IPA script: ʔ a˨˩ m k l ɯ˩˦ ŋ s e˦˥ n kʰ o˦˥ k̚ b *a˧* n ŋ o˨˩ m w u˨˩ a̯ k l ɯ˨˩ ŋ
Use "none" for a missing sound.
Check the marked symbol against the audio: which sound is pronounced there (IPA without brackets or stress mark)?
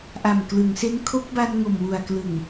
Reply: a˧